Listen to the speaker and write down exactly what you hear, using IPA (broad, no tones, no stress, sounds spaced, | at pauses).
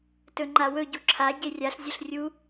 t ɵ ŋ͡ǃ a w ɵ ɟ u ǁʰ a ɟ e rʲ a ɬ zʲ ɵ ɬ rʲ u